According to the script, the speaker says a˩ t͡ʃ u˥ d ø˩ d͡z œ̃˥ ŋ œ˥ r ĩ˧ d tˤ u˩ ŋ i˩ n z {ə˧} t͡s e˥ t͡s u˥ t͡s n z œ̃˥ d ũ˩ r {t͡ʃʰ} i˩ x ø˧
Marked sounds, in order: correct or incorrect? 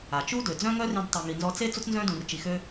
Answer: incorrect, incorrect

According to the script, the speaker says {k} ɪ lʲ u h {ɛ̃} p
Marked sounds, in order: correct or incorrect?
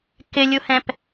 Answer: correct, correct

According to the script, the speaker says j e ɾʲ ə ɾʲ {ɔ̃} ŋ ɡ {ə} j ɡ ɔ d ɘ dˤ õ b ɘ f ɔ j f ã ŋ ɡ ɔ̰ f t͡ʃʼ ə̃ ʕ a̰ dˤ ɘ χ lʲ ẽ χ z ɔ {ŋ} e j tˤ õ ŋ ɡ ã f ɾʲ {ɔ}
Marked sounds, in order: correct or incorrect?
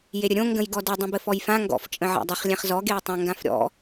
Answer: incorrect, incorrect, incorrect, incorrect

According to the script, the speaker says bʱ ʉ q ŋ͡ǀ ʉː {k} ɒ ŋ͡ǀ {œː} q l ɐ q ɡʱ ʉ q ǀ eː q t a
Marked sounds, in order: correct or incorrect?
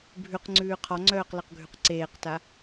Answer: incorrect, correct

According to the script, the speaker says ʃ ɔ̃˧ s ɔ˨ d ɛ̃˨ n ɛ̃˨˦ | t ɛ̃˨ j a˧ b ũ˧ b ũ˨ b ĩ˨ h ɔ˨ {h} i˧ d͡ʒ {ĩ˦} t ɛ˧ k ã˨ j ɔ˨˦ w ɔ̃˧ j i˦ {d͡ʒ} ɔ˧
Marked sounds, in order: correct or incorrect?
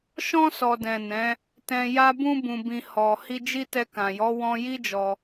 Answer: correct, incorrect, correct

